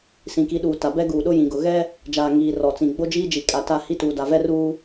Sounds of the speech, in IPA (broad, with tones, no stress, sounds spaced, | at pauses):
s ĩ˨ k i˨˦ ɗ uː˨ t a˨ b ɛ˦ ɡ uː˨ ɗ ʊ˦ j ĩ˨ ɡ ʊ˨ ɣ ɛ˦ | d͡ʒ aː˨ ŋ iː˨ r ɔ˨ t͡s ĩ˨ ɡ͡b o˦ d͡ʒ iː˦ d͡ʒ i˨ kʼ a˨ t a˦˨ h i˦ t uː˨ d a˨ v ɛ˦ r uː˦